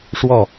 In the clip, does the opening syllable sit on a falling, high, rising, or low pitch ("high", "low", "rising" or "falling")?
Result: falling